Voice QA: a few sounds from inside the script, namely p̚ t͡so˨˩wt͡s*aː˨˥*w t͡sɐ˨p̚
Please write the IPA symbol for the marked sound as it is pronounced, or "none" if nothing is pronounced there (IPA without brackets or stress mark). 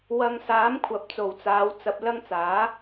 aː˨˧